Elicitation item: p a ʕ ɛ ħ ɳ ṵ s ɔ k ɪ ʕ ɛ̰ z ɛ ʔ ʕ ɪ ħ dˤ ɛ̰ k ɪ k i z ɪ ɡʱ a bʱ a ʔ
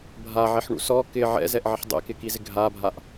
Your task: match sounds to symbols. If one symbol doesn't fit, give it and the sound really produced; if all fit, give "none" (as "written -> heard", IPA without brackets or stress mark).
p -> bʱ